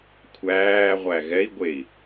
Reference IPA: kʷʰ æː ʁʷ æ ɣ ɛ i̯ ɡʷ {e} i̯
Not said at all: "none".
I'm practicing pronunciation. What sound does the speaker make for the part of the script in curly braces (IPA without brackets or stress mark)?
e